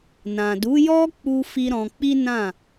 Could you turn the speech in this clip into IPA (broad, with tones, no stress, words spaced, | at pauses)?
nã˨du˨˦jɔ˦ k͡pu˦ fi˦ɾɔ̃˧ k͡pi˦nã˦˨